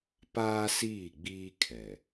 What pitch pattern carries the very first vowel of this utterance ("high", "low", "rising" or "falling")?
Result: high